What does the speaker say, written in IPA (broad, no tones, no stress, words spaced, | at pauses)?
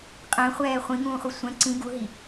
qʼɛ̃χʷɛː χʷĩŋũːχʷi sʷɛ̃ ǀĩ ɡuɦi